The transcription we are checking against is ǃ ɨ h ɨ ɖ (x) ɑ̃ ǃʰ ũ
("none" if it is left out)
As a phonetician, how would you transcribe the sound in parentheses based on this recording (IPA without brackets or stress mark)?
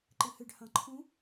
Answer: h